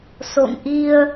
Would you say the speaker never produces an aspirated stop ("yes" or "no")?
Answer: yes